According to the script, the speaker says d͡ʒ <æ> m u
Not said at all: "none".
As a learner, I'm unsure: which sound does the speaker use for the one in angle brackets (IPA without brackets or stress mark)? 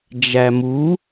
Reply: æ